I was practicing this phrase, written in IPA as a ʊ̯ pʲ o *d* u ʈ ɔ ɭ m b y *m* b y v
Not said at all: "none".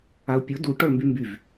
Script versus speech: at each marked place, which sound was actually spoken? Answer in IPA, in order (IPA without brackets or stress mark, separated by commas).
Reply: d, m